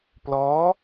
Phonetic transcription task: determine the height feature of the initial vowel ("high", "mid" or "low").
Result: mid